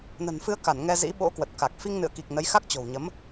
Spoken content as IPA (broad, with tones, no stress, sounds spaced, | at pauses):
n ə̤˨˩ n f ɨ˧ ə̯ k a˧˩ n ŋ ɛ˧ z ḭ˧˥ ɓ o̰˧˥ k w ə˨˩ t̚ k a˨˩ k̚ f i˧ ŋ n ɨ̰˧˨ ə̯ k i˨˩ k̚ n ə˨˦ j x a˦˥ k̚ t͡ɕ o̤˨˩ w ɲ ə˨˦ m